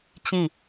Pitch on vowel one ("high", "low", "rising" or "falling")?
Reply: falling